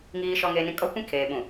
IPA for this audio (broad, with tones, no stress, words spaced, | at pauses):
ŋiː˨ʃɔ˨ŋeː˨nĩ˨ kʼɔ˦kʷĩ˦ kʰeː˨ ɓũ˨